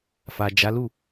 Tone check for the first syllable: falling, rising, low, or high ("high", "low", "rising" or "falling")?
low